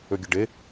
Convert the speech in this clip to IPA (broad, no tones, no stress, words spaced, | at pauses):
øɡʲəɖe